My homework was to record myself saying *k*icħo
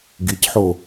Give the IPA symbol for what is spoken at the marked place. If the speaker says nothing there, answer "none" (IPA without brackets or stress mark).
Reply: ɡ